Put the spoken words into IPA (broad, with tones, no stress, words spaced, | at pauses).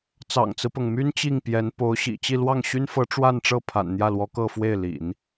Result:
t͡sɑ̰˨˩ŋt͡sɹ̩˦pɤ˩ŋmy˥n t͡ɕi˥˩ŋpjɛ˧˥n po˧˥ʊ̯ ɕḭ˨˩t͡ɕi˥˧ lwɑ˥˩ŋɕy˥nfɤ˧˥ ʈ͡ʂwa˥˧nʈ͡ʂɤ˥˩ pʰa̰˨˩nn̪jä˥˩lwɔ˧˥ kɤ˥˧fwe˥˩ɪ̯ lḭ˨˩˦n